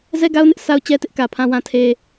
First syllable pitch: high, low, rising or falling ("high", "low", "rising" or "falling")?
high